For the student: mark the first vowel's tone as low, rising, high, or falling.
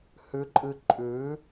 rising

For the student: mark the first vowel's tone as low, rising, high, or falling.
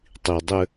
low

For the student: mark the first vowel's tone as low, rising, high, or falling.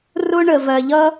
high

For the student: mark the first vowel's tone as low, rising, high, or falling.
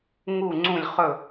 falling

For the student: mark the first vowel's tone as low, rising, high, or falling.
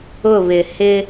falling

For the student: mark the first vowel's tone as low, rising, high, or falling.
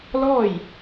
falling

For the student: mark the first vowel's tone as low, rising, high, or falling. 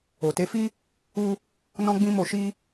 low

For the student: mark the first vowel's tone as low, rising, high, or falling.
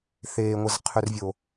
low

